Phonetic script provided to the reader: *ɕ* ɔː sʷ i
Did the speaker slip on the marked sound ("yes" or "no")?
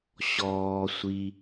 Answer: no